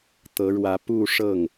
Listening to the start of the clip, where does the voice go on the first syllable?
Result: rising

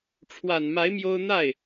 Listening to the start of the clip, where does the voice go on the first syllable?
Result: low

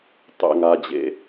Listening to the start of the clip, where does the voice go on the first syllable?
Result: low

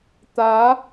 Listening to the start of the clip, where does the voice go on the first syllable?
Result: rising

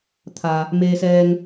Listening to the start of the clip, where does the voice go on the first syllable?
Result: low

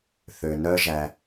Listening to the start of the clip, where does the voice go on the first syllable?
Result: low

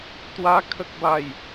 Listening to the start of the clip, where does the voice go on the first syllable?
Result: high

